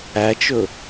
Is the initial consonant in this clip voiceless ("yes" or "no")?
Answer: yes